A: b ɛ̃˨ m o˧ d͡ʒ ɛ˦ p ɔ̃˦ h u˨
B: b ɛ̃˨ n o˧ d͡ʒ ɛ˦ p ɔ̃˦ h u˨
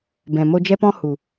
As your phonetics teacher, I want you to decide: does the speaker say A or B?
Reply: A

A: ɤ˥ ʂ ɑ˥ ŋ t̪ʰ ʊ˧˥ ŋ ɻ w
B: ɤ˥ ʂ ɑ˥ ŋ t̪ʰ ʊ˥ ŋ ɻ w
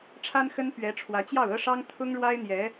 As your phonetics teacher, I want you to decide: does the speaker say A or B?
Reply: B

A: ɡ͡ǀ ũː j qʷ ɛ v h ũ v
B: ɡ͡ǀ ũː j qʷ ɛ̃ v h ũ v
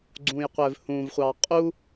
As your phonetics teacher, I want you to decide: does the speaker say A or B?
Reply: A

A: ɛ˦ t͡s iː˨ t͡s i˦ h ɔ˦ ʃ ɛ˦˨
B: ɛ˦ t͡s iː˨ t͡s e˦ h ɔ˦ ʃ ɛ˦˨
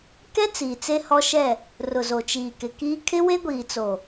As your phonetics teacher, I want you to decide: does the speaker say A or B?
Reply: B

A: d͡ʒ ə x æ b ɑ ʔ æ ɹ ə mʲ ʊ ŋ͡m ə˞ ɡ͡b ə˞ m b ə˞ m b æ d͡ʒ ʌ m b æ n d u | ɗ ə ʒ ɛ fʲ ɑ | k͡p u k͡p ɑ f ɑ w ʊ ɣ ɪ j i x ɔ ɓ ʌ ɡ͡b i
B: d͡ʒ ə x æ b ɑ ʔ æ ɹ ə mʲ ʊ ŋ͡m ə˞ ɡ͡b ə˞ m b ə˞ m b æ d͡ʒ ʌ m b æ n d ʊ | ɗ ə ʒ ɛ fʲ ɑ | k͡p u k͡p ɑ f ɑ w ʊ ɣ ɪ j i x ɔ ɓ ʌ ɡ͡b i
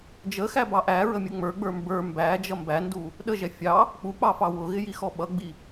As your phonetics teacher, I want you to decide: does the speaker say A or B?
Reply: A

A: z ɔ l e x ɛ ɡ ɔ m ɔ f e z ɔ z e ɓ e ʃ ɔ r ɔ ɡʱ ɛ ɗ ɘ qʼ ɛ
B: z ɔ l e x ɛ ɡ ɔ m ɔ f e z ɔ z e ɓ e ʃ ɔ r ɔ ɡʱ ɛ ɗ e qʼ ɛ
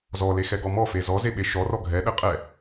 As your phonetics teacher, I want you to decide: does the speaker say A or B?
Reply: A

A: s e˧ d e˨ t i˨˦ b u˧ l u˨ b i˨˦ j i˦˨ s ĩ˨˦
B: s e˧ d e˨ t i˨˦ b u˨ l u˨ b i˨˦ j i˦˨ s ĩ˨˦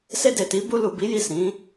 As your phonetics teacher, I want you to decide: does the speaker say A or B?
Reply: A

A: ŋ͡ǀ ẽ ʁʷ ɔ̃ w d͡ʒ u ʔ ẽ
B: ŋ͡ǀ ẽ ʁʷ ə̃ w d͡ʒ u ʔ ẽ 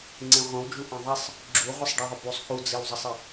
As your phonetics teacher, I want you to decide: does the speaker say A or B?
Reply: B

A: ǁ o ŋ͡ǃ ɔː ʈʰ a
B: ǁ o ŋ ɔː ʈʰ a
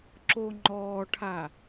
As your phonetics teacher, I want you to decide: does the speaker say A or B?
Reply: A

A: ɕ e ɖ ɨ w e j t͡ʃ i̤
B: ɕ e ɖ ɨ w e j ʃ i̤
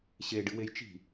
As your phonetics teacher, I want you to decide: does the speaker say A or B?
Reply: A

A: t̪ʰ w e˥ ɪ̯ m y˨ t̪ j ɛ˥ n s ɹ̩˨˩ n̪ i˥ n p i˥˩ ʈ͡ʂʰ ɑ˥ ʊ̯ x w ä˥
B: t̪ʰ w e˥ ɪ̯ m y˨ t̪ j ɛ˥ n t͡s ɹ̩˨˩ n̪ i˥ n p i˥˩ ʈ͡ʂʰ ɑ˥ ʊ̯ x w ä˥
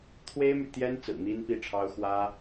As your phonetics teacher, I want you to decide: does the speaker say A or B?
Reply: B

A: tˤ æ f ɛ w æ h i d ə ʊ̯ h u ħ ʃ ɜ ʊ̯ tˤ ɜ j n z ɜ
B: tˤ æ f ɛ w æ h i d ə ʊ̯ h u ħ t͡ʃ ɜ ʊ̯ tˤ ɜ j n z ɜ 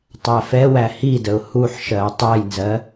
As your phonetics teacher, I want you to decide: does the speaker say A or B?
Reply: A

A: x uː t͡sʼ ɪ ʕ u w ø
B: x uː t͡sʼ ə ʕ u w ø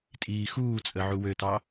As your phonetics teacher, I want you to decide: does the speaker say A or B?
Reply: B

